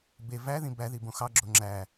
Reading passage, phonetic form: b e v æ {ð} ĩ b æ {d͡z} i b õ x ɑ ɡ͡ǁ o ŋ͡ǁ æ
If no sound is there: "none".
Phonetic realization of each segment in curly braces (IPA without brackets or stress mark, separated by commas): ð, ð